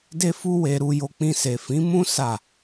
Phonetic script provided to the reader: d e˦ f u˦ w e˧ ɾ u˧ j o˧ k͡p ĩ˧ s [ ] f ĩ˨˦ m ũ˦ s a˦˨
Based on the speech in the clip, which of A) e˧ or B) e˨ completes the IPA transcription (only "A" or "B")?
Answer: B